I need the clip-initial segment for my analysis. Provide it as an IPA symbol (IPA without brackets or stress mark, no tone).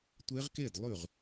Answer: tʷ